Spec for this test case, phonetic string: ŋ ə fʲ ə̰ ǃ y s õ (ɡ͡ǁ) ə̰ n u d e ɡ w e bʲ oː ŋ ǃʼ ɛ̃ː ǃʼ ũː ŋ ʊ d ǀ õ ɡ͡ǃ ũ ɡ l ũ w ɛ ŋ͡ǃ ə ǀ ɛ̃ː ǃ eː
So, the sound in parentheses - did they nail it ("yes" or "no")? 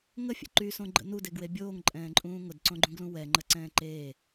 no